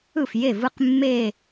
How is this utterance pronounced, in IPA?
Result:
ɯ˥˩fje˥˩vɯ˥˧q mːe˥˧

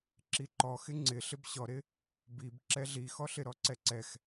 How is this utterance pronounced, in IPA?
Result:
ǁiǃɔxɪ ŋ͡ǀɪ ɬɪbɕɔɾɪ | bib ǁɛɮixɔɬɪ ɾɔǀɛǀɛx

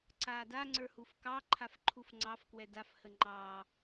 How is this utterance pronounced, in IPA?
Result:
ǀaːdaŋ͡ǀə˞ hufkɑǃʰaf ǃʰufŋ͡ǀɑfkwɛ dafhə ŋ͡ǃɑː

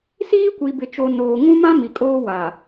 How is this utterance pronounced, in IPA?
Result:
siː˦kʷi˨ bɪ˨t͡ʃo˨ noː˨ŋũ˦mã˦ mi˨kʼoː˦wa˨

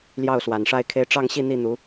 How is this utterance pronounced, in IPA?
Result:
ljɑ˥˩ʊ̯swa˨˩nʂa˥˩ɪ̯kʰe˥ɪ̯ ʈ͡ʂɑ˥˧ŋɕi˥˧ n̪i˥˩n̪u˧˥

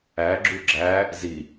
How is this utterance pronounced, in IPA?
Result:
æɡ͡ǁu ɡ͡ǁæ | zi

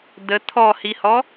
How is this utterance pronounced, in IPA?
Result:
d̪ə t̪ʰɔhihɔ

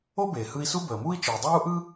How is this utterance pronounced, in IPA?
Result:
o˥beː˩ hɯ˧i̯su˥ bəː˩muː˥i̯ t͡ʃɯː˩dˤaː˥u̯ʔɯ˥

